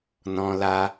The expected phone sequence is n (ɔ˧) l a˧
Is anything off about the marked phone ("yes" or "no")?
yes